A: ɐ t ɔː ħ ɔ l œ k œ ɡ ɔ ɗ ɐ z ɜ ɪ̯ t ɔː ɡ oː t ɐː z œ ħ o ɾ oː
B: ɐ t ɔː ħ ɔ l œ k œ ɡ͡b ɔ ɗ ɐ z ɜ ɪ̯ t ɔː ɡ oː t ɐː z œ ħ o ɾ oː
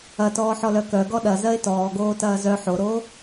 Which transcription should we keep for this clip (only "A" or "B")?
A